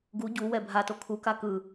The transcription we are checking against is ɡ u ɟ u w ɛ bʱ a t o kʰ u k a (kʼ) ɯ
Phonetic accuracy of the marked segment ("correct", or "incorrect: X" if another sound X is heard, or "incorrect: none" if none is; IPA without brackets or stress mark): incorrect: k